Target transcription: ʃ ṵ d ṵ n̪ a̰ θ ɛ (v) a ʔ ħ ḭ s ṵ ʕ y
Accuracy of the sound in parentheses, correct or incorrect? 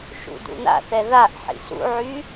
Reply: incorrect: ð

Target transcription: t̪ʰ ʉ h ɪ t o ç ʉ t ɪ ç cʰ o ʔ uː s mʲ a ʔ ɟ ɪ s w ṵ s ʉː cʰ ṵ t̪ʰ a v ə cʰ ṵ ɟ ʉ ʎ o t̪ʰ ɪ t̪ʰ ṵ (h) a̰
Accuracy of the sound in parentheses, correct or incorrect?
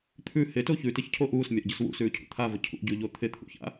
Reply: incorrect: ç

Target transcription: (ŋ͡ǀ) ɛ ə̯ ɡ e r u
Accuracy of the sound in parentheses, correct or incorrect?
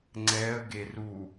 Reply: correct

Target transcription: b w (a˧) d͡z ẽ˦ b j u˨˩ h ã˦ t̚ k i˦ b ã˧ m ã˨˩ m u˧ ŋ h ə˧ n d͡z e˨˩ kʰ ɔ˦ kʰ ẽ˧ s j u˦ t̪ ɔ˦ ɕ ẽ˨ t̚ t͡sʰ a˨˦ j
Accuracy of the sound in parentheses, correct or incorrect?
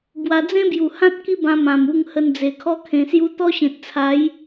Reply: correct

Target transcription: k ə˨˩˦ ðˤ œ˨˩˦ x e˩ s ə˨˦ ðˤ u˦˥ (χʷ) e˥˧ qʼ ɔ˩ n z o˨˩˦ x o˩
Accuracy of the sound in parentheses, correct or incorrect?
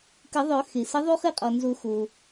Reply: incorrect: χ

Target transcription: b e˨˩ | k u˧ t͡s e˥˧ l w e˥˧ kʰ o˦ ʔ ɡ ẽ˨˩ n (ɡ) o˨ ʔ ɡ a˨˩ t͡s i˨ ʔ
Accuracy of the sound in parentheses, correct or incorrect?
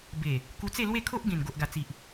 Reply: correct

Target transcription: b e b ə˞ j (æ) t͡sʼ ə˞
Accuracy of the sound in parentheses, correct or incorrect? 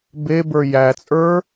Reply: correct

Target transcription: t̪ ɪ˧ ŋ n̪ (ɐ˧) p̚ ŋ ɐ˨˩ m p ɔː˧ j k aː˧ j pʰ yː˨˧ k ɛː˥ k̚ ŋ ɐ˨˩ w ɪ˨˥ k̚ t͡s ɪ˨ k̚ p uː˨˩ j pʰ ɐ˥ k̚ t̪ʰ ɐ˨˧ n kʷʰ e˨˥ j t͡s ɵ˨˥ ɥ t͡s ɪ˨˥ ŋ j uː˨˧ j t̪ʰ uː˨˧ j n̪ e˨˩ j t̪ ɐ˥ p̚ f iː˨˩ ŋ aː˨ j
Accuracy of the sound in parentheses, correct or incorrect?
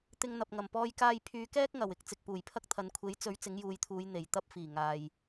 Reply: incorrect: ɐ˨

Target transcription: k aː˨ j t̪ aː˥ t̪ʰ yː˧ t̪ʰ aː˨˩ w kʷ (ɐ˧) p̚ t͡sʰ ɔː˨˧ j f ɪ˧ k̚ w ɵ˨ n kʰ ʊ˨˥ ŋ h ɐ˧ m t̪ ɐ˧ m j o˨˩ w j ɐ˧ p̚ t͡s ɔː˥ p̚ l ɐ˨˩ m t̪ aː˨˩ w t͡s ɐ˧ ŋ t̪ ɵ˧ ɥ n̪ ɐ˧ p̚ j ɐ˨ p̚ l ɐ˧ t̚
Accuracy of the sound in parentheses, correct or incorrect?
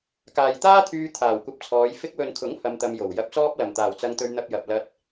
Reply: correct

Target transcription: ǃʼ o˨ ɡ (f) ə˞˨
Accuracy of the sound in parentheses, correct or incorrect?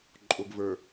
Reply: incorrect: v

